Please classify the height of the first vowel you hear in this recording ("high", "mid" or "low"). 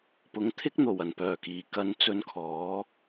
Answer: high